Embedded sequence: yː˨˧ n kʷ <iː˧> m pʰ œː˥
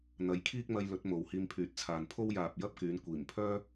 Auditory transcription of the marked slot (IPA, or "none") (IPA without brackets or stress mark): iː˨˩